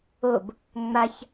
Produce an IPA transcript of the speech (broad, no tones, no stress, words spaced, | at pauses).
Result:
ob | ŋ͡maç